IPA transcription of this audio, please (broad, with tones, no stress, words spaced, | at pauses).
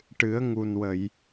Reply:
ʈɨ˨˩˦ə̯ŋu˨˩n wə˨˩˨j